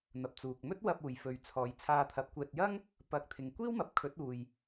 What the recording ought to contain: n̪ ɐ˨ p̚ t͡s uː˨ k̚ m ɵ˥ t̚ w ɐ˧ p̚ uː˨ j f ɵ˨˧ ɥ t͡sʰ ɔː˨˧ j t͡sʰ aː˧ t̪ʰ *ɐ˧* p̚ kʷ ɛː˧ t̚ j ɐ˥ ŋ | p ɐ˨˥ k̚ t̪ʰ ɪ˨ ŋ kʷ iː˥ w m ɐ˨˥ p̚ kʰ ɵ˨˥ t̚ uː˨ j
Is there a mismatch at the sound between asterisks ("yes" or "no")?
yes